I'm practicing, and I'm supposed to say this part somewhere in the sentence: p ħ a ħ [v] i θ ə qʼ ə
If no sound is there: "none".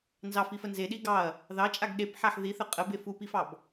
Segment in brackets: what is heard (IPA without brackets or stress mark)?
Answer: ð